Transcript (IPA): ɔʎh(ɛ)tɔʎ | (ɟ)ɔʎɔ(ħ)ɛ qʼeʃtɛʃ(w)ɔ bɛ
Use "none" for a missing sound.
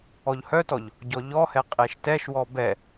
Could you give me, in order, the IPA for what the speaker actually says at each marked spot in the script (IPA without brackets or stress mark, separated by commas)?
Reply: œ, ɟ, h, w